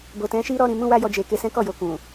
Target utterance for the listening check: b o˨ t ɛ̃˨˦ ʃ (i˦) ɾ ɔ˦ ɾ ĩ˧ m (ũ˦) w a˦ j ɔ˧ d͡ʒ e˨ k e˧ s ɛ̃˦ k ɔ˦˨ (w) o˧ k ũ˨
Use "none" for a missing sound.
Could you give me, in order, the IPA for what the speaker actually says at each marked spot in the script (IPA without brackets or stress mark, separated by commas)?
i˦, ũ˦, j